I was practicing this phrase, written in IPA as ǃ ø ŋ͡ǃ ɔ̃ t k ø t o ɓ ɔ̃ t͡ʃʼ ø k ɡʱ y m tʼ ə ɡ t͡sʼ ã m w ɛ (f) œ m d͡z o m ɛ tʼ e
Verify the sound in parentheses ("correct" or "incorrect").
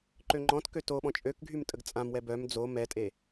incorrect